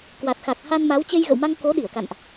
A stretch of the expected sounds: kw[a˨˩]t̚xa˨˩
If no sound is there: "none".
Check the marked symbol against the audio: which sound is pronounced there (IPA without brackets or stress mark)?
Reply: a˨˩